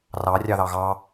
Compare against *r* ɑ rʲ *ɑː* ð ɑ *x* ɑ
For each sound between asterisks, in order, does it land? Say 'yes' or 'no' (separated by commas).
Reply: yes, no, no